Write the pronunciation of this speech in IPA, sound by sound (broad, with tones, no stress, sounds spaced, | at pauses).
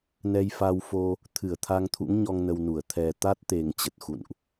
n ɛ˧ j f a˧ w f o˧ | t̪ʰ ɨ˧˩ ə̯ t̪ʰ a˧ ŋ t̪ʰ ṵ˧˥ ŋ ɲ ɔ˧ ŋ n ə˧ w n u˧˩ ə̯ t̪ʰ ɛ˨˩ t̪ a˦˥ t̚ t̪ e˨˩ ŋ t͡ɕ ə˨˩ t̚ x ṵ˧˨ n ʔ